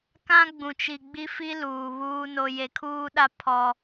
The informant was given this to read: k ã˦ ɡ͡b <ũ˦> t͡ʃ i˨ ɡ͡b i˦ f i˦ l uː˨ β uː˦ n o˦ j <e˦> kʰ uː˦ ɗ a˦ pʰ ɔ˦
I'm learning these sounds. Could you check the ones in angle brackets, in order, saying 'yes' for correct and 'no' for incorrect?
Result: no, yes

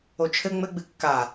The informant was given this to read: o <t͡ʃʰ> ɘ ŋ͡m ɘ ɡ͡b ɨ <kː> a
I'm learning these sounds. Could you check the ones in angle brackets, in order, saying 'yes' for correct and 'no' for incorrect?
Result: yes, yes

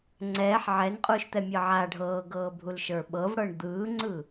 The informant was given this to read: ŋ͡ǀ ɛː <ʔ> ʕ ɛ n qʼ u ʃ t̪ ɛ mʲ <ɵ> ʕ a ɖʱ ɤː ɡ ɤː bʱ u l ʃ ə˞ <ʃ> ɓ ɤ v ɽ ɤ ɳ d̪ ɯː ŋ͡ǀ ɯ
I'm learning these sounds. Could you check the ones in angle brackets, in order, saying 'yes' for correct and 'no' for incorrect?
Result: no, no, no

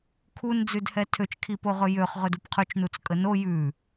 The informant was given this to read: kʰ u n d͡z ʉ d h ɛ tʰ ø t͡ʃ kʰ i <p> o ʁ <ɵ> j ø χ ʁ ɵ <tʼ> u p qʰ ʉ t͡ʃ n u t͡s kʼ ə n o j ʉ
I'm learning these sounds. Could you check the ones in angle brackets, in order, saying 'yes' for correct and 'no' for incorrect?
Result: yes, yes, no

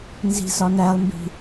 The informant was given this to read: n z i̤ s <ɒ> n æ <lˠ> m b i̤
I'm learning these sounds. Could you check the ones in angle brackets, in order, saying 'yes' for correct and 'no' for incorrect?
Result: yes, yes

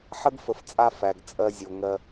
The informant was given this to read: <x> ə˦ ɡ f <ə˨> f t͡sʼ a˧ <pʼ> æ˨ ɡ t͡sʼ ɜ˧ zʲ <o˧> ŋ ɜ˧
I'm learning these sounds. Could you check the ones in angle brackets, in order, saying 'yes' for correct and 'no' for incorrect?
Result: no, yes, no, no

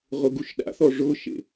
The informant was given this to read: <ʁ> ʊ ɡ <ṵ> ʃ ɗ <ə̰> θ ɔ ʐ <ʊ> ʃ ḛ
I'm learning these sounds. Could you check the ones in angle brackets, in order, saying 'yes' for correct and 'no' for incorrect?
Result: yes, no, no, yes

